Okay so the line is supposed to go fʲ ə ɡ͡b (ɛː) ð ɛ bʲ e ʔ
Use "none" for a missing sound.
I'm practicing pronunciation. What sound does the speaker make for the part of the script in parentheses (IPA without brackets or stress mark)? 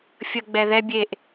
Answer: ɛ